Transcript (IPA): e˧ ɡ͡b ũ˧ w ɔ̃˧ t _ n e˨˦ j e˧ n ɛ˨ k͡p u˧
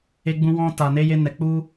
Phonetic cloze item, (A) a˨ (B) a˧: A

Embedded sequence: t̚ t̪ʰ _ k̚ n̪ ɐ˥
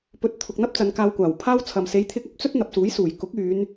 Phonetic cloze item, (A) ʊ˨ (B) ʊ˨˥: A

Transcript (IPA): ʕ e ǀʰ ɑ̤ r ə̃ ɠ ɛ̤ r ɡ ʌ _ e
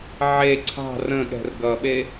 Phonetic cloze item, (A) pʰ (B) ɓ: B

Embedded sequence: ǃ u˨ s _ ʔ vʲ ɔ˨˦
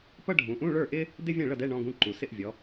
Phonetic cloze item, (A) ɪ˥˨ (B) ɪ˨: A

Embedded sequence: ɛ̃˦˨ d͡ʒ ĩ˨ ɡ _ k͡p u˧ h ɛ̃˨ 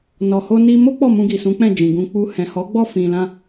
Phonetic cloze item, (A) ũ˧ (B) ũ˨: A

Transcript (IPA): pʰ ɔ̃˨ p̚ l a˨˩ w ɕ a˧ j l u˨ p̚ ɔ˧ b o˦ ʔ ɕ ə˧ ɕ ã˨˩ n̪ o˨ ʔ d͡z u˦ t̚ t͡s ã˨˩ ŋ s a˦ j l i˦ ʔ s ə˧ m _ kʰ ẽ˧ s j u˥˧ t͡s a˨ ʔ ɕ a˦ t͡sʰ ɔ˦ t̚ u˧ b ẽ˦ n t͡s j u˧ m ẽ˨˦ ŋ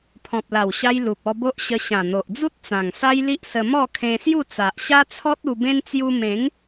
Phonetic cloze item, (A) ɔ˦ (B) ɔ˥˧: B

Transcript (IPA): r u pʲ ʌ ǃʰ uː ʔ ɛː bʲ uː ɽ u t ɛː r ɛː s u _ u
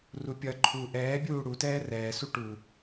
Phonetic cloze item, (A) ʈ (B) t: A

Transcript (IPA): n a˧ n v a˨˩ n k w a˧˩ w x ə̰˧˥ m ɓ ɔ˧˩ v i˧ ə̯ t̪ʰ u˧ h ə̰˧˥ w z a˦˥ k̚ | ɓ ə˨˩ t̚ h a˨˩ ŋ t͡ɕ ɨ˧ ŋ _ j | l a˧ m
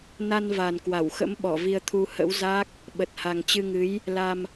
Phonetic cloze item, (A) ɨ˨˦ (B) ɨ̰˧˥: A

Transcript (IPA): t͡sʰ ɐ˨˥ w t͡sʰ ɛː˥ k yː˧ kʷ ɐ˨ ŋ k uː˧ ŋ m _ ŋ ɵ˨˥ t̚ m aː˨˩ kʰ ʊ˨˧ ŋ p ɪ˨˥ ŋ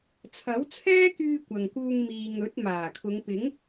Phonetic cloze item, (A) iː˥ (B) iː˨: B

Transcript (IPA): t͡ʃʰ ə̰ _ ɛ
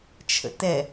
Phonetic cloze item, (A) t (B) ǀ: A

